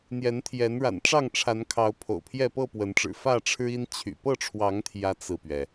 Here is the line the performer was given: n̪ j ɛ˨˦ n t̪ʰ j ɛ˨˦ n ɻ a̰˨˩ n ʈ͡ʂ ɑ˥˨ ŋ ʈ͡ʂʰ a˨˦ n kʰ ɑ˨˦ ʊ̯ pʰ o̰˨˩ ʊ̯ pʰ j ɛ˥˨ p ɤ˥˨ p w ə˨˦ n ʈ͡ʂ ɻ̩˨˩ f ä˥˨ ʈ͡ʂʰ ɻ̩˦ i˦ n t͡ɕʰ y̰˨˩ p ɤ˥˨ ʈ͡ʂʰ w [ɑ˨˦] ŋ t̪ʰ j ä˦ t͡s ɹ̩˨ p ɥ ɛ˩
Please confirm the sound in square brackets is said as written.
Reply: yes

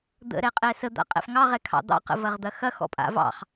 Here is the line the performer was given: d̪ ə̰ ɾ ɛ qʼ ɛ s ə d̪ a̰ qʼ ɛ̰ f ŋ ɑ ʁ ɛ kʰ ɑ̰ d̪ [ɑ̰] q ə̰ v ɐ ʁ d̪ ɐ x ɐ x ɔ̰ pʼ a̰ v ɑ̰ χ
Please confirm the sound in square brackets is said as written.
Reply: yes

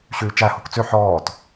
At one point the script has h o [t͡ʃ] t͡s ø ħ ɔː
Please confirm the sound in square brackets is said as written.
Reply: no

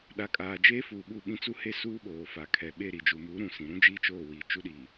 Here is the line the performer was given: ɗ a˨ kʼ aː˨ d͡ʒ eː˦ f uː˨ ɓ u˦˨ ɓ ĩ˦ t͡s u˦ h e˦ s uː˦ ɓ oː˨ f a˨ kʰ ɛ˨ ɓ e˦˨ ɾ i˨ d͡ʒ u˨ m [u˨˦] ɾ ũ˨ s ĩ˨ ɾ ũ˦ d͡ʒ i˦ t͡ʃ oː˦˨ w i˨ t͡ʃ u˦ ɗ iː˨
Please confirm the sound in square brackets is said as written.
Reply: yes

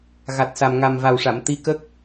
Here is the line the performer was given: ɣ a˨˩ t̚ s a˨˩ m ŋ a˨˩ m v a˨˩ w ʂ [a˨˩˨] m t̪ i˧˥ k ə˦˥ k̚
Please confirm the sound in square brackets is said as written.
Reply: yes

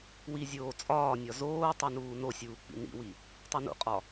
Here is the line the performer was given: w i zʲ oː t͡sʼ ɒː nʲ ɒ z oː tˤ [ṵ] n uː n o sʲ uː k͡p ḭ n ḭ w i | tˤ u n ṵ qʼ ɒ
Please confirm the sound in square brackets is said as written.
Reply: no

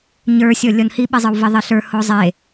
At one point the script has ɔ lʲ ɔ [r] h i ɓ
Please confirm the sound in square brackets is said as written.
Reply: no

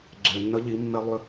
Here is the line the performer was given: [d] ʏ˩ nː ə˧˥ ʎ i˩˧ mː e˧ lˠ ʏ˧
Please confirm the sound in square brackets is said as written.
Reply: no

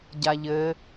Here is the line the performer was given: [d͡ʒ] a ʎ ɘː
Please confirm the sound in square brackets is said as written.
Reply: no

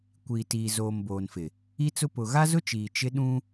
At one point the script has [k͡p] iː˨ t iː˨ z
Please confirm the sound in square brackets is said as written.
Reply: no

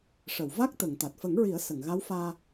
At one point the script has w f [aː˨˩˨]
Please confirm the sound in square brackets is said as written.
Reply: no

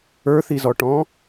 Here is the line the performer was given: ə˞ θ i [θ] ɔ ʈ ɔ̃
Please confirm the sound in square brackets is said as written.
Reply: no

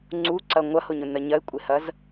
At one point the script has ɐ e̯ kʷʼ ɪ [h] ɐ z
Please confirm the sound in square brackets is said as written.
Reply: yes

